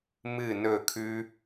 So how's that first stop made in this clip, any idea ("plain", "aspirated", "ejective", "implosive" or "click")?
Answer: aspirated